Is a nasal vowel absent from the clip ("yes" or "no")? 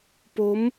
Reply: yes